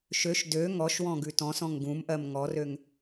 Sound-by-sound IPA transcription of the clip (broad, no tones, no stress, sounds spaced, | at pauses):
ʃ ø ʃ d ø ŋ ɔ ʃ w ɔ̃ ɡ ʉ t ɔ̃ s ɔ̃ ŋ ɡ ũ m ʔ ɜ m ŋ ɔ r ø ŋ